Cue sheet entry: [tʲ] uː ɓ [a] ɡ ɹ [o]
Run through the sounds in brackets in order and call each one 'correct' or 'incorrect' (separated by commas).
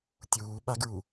correct, correct, incorrect